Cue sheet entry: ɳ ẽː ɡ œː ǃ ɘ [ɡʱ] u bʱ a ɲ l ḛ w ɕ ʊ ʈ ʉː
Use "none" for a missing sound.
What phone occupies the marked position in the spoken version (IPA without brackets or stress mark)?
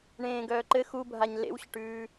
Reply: x